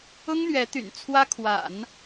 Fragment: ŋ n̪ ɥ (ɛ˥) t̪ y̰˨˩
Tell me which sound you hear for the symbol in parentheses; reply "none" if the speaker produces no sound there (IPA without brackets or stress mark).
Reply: ɛ˧˥